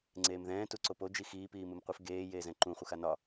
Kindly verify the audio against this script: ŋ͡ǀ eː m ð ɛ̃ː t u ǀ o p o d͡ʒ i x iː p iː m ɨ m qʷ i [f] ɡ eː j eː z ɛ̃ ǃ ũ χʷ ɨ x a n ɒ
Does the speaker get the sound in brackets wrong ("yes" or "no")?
no